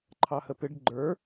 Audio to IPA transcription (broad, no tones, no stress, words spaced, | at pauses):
ǃʰɑhəpɪɖ ɡ͡ǃə˞